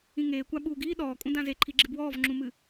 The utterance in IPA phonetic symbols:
ĩ ŋ eː kʷ a ɓ uː ɡ iː ɗ ɔː kʼ ũ d ã z e ǃʰ i ɡ͡ǁ ɨ b w ɔː v ŋ͡ǁ ũ m ɨ

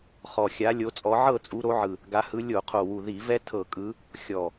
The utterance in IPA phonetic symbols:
χ ɔ˨˩ xʲ a˨˦ lʲ o˨˦ t͡sʼ ɔ˨˦ ʕ ɤ˥˨ t͡sʼ u˨˦ ɾ o˨˦ ʕ ɯ˨˩ | ɡ a˨˦ h ɯ˨˦ lʲ o˧˩˧ qʰ o˨˩ w u˨˩ ð i˧˩˧ v ɛ˦ tʰ ɤ˧˩˧ kʼ ɯ˨˦ | xʲ ɔ˨˩

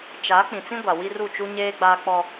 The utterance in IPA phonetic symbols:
t͡ʃ a˨˦ k͡p ĩ˨ t͡s ĩ˦ ɡʷ a˨ w i˦ r u˦˨ t͡ʃ u˦ ɲ eː˦ ɡ͡b aː˦ k͡p ɔ˦

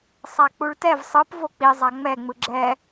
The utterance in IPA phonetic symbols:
sˤ a k͡p u ɭ t ɛ v sˤ ɯ p v o k͡p i zˤ a ŋ͡m ɛ ŋ͡m ɯ ɡ͡ǁ ɛ

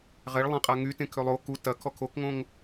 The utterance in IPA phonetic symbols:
ʁ ɛ ɭ lˠ ẽ qʼ a ŋ y t ẽ kʰ ø lˠ o k u t ɐ kʰ ɔ kʰ o k ŋ õ ŋ

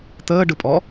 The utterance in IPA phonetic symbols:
t̪ əː ɖ ɯ pʼ ɔ

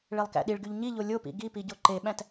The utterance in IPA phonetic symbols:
ɭ e lˠ k æ̰ ɗ i ɭ ɡ y ʎ ɲ i ʎ o lʲ o p ḭ ɡ i p i ɟ o ǃ e ɓ æ̃ t

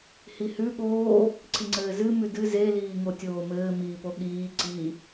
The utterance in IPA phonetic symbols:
h i h ʉ ɠ oː | ǀ i ŋ͡ǀ ɘː z ɨ m ʉ d ɨ z e l iː ŋ o tʲ oː m ɘː m iː p o ɠ iː ǀ i

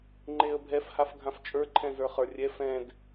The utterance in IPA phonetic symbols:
ŋ͡ǃ e ə̯ bʱ ɛ f h a f ɡʱ ã f t͡ʃʼ ə˞ ǃʰ ɛ̃ z ə˞ χ ə˞ rʲ ɛ f ɛ̃ d

